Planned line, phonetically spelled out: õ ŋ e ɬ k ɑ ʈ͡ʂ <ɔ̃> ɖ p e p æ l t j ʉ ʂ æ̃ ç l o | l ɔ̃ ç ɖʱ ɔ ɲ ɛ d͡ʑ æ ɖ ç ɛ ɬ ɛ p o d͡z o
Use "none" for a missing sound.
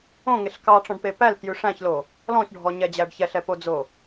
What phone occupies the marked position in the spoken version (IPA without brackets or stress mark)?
ɔ̃